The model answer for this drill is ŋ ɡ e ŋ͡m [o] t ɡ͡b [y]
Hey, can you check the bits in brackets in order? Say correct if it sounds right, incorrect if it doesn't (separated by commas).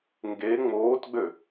incorrect, incorrect